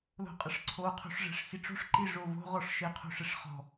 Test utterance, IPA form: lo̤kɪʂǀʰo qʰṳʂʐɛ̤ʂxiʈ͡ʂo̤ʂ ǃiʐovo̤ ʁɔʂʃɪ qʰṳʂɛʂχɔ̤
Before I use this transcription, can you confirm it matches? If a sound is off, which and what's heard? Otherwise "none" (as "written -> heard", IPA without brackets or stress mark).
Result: k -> qʼ